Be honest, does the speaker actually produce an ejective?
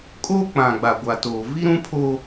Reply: yes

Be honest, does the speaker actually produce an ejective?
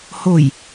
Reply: no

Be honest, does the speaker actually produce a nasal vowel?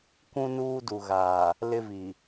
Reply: yes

